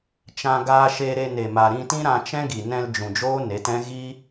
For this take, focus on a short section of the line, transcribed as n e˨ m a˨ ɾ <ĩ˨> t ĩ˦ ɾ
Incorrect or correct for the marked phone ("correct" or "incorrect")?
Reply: incorrect